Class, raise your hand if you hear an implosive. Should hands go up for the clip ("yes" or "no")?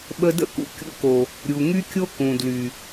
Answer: yes